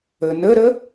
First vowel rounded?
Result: no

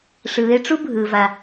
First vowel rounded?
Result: no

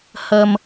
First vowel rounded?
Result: no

